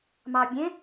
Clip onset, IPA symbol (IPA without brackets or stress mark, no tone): m